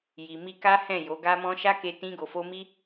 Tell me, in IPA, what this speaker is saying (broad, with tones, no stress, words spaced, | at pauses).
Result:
ji˨mi˧ka˦ hɛ̃˦˨jo˨˦ɡa˦mɔ̃˦ ʃa˦ke˧ tĩ˧ɡo˨fo˧ mi˦